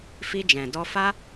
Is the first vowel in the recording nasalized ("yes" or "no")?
no